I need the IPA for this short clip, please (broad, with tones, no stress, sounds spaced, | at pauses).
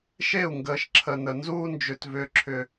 ʃ e˦˨ u̯ ŋ ɡ əː˨ ʃ ǁʰ ə˨ n ə˨ n z uː˦ n d͡ʒ ʏ˨ t v ʏː˨ ǁʰ ʏ˨